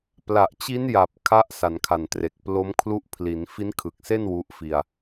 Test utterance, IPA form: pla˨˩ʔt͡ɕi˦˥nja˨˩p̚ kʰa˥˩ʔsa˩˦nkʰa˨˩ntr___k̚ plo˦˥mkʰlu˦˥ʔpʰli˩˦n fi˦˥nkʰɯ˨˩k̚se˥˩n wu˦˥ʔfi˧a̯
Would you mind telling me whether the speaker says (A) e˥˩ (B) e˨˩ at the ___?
B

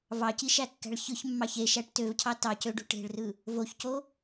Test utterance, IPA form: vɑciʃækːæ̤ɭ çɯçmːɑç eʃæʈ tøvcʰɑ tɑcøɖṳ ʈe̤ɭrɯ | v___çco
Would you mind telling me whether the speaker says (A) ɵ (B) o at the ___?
B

